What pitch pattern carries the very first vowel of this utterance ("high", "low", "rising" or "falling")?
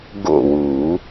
falling